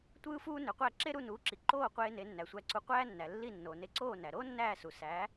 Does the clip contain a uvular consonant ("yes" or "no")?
yes